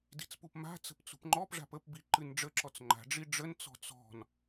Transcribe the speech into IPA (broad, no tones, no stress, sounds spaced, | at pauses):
d i̤ t͡s p u p m a̤ t͡s ə̤ p t͡s ṳ p ŋ͡ǃ ɔ p ʐ a̤ p ə p b i ǃ ɨ n ɖ͡ʐ ə ǁ ɔ t͡s ŋ͡ǃ a̤ ɖ͡ʐ i ɖ͡ʐ ə n t͡s ɔ̤ t͡s ɔ̤ n